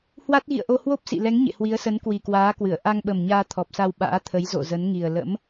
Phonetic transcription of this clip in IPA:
hwa˦˥t̚ɣḭ˧˨ə̯ʔo˧ hwo˦˥p̚sḭ˧˨lɛ˨˦ŋ ɲḛ˧˨hwi˨˦ə̯sə˨˦n kwi˨˩kwaː˨˦kwɨ˧˩ə̯ ʔa˧ŋɓə˨˩mɲaː˧ t̪ʰɔ˨˩p̚sa˧w ɓa̰ː˧˥t̪ʰə˨˦jzo̰˧˨ zə˨˦nŋi˨˩ə̯ lə̰˧˥m

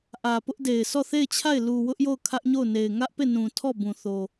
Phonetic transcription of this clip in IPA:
ʔä˨pʊ˦ʔde˨ɪ̯ sɔ˦˨θe˦˨ɪ̯t͡ɕʰa˦˨ɪ̯ lu˨wʊ˦ʔ jo˦˨ʊ̯kʰä˦ʔɲo˦˨ʊ̯ ne˨ɪ̯ ŋä˦ʔpe˦˨nũ˨tʰɔ˦˨ bũ˨θo˨

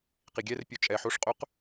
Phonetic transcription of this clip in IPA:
qiɡʲɛr pʲot͡ʃʼɛ ħoʂqʼɵq

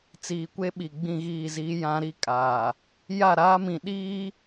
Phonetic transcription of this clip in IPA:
t͡siː˨kʷe˦ɓi˨ ɡ͡bĩ˦˨ɣiː˦˨ziː˦ jã˦ ɾi˦ kʼaː˨ | ja˦˨ɾaː˦mĩ˨ ɗiː˦

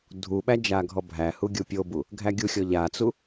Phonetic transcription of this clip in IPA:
dʱuɓæ d͡ʒaɡʱɔbʱæhu ɡʲupʲobu | ɡʱæɡʲuxʲɔ ʎat͡su

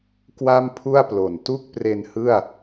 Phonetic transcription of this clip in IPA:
kwa˥˩mpʰu˥˩a̯plo˨˩n tu˥˩k̚pre˧nhɯ˥˩a̯

